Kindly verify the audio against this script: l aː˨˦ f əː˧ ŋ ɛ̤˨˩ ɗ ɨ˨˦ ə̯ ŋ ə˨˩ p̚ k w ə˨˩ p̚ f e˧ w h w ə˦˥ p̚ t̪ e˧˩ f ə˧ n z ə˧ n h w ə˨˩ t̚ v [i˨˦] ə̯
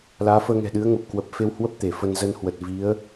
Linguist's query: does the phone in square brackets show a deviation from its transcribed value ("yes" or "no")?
no